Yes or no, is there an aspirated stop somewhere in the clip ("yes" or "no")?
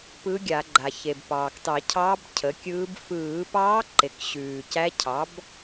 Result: yes